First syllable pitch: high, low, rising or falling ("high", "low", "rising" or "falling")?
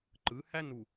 rising